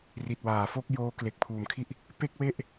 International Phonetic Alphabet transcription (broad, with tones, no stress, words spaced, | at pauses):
ri˨˩t̚waː˩˦fo˥˩k̚ joː˦˥ kle˨˩k̚pʰuː˨˩mkʰi˥˩ʔ | pe˥˩k̚we˥˩ʔ